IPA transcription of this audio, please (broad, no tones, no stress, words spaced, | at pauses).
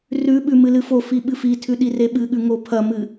rʉɓʉ mɨlɨfofi ɓɨfitʰʉ ɗireɓɨɠʉ ŋopʰɐmɨ